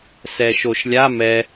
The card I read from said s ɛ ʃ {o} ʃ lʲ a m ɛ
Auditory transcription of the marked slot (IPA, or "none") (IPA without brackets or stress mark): o